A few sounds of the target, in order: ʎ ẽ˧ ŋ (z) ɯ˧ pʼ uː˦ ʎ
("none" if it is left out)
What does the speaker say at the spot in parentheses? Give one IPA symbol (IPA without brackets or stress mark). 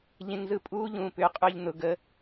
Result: z